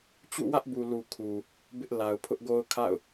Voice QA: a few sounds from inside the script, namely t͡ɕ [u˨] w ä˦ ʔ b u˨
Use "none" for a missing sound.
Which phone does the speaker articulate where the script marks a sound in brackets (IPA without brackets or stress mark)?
ṵ˦˨